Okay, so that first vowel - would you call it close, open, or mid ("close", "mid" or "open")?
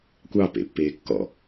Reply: open